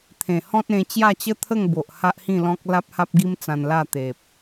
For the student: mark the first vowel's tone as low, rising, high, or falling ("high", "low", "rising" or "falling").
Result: low